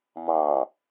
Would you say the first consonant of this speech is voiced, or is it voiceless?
voiced